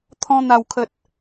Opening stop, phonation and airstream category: aspirated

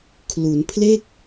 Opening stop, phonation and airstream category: aspirated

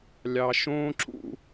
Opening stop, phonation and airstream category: click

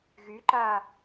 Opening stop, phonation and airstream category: click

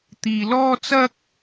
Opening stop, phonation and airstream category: plain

